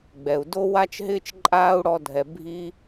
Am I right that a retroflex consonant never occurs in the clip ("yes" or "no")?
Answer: no